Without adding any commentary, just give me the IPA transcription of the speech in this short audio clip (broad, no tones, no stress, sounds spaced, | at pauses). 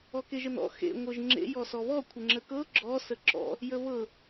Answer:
ɔ k e ʒ ə n ɔ̰ x ḛ ŋʷ ɤ ʒ ŋ͡ǁ ḛ j ɔ s ɔ β ɔ kʷʰ ə ŋ͡ǁ ə k ɤ ɡ͡ǁ ɔ s ə ǁ ɔ̰ | j ə β ɤ